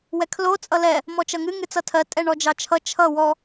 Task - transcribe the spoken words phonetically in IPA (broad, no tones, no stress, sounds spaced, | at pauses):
w ɛ kʰ l o t͡sʼ ʌ l ɛ | m ɔ t͡ʃ ʌ ŋ ɨ ŋ ɨ t͡s ʌ tʰ ɜ tʼ ɛ ɳ ɔ d͡ʒ ɑ t͡ʃʰ ʌ t͡ʃʰ ʌ w ɔ